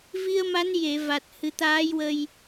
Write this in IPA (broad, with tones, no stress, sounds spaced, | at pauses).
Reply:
v i˧ ə̯ m a˧˥ n j e˨˩˨ v a˨˩ t̚ h ɨ˨˩˦ t̪ aː˧˥ j w ə˧ j